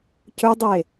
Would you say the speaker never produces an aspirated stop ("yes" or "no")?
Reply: yes